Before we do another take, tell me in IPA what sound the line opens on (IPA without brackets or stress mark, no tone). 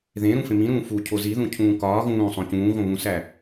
ð